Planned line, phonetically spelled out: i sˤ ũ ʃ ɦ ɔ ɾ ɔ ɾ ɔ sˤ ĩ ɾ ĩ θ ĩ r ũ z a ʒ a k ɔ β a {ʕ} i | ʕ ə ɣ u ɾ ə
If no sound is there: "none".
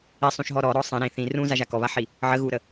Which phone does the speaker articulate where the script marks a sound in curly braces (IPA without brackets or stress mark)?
ħ